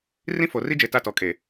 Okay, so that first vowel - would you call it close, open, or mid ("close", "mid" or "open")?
close